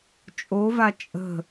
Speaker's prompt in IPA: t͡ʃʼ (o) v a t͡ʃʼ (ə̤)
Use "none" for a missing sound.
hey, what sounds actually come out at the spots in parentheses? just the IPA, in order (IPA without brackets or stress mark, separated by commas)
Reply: o, ə̤